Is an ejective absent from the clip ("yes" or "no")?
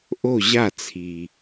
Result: yes